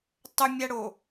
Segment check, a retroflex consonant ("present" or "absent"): present